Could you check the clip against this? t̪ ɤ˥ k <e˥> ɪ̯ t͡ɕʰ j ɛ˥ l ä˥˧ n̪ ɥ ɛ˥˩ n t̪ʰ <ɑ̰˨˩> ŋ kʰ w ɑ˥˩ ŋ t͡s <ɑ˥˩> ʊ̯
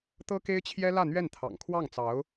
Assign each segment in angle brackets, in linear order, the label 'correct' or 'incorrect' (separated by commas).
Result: correct, correct, incorrect